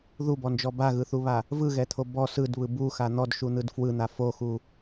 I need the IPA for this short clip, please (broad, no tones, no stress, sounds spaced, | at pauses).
ð u b ɔ n d͡ʒ ɔ b a ɣ ɯ θ u β a | v ɯ ɣ ɛ t̪ʰ o b ɔ s ɯ d β ɯ b u x a n̪ ɔ d ʃ u n̪ ɯ d f w ɯ n̪ a f o x u